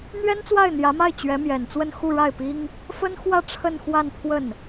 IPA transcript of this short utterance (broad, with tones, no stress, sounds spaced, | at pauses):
n̪ ɥ ɛ˥ n t͡s w a˥˩ ɪ̯ n̪ j ä˧˥ m a˥˩ ɪ̯ t͡ɕ ɥ ɛ˧˥ m j ɛ˨˩ n t͡s w ə˥˧ n x u˥˧ ɻ a˥˩ ɪ̯ p i˥ ŋ | f ə˥ n x w ä˥˧ ʈ͡ʂʰ ə˥˧ n x w a˥˧ n pʰ w ə˥˩ n